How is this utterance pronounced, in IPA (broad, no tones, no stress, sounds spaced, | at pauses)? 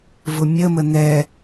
v ʊ mʲ ə m ə n ɛ